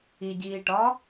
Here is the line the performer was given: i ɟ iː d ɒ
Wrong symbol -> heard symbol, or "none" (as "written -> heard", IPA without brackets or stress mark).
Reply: d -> ʈ